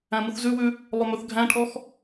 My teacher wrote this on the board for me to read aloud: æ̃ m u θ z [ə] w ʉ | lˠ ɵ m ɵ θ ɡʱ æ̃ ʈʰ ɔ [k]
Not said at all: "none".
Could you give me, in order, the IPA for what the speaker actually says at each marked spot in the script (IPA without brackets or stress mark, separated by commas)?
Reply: ʉ, x